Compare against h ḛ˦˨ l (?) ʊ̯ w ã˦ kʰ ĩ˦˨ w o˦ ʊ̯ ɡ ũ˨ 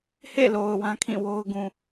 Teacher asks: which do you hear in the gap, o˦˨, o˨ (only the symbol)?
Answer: o˨